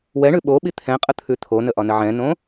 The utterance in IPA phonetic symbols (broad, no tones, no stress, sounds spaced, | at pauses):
w ɛ ɳ ʉ ɓ o ɓ i t̪ʰ ɛ̃ qʼ ə t̪ʰ ʉ t̪ʰ o n ə ʔ ɒ n ə ʕ ɛ̃ n õ